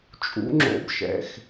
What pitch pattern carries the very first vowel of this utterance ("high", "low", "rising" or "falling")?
rising